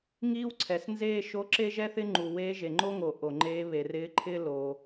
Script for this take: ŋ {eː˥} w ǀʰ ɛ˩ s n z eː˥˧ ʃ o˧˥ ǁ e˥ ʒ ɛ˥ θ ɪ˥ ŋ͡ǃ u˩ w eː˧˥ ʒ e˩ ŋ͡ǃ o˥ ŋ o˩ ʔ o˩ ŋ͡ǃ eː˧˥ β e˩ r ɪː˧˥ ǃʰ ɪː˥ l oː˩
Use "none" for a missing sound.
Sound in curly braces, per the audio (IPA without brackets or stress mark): iː˥